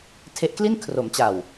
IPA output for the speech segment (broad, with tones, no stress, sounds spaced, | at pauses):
tʰ e˦˥ ʔ k l i˥˩ n kʰ r o˩˦ m t͡ɕ a˨˩ w